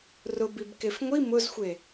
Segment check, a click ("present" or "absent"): absent